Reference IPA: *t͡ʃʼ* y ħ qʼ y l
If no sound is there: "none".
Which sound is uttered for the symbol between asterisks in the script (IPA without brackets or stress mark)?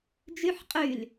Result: d͡ʒ